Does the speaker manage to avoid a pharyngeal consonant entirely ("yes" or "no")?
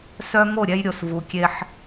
no